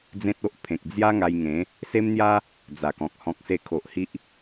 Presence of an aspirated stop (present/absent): present